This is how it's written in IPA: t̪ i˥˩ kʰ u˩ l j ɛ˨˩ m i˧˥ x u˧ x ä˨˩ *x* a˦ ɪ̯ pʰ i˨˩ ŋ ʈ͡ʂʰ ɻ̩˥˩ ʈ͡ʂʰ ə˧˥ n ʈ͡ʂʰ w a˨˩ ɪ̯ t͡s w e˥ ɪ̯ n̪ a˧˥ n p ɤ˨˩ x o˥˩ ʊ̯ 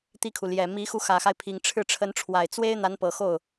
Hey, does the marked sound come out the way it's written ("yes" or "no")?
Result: yes